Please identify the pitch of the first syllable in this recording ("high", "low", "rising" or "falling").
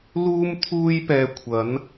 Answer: high